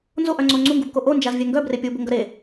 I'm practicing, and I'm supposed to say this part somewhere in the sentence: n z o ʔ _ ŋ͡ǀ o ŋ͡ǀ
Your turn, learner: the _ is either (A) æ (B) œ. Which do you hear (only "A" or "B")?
B